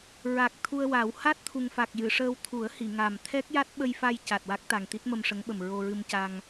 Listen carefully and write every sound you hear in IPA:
ɹ a˨˩ k̚ t̪ʰ u˧ ə̯ w a˨˩˦ w h a˦˥ t̚ t̪ʰ u˨˩ ŋ f a˨˩ k̚ j ɨ˨˩˨ ʂ əː˧ w t̪ʰ u˨˩˦ ə̯ h i˨˩˨ ŋ a˨˩ m t̪ʰ ɛ˦˥ k̚ j a˦˥ t̚ ɓ ə˧ j f a˧ j c a˨˩ t̚ w a˦˥ k̚ t̪ a˨˩ ŋ t̪ i˦˥ t̚ m ə˧ m ʂ ə˧˥ ŋ ɓ ə˨˩ m ɹ o˧ ɹ ɨ˧ m c a˧ ŋ

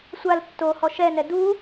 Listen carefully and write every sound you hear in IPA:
sʷ a l tː o h ɔ ʃ ɛ n ɛ d u

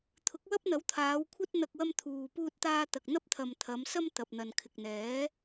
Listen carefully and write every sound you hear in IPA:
t̪ʰ ʊ˨˥ k̚ w ɐ˥ p̚ n̪ ɐ˨˥ w t̪ʰ aː˨˧ w kʷʰ ɐ˥ t̚ n̪ ɐ˧ k̚ w ɐ˥ m t̪ʰ uː˨ p uː˥ t̚ t̪ aː˥ t̪ ɐ˨ k̚ n̪ ɐ˥ p̚ t̪ʰ ɐ˨ m t̪ʰ ɐ˨˧ m s ɐ˥ m t̪ ɐ˨ p̚ n̪ ɐ˨ n kʰ ɪ˨ k̚ n̪ ɛː˨˥

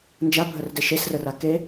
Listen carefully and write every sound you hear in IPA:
n d͡ʒ a bʱ ə r d e ʃ e s r ə r a k e

